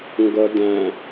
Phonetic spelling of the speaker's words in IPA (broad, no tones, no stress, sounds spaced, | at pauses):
ŋ ɡ ʌ d æ̃